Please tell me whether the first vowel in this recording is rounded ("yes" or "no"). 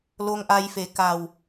yes